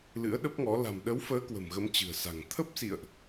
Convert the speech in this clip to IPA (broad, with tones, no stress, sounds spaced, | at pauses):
l ɨ̰˧˥ ə̯ ɗ ə˦˥ p̚ ŋ ɔ˨˦ l a̤˨˩ m ɗ ə˨˦ w f əː˨˦ k w ə̤˨˩ m ɣ ə˨˦ m t͡ɕ ɨ̤˨˩ ə̯ s a̤˨˩ ŋ t̪ʰ ə˦˥ p̚ s ḭ˧˨ ə̯ ʔ